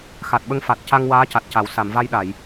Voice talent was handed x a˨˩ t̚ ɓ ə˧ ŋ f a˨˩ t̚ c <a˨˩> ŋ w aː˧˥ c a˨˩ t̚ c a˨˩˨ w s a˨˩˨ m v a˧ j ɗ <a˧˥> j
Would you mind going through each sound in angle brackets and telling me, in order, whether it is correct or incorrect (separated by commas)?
incorrect, incorrect